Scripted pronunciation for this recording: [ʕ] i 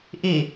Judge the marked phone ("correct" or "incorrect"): incorrect